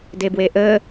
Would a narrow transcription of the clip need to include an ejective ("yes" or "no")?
no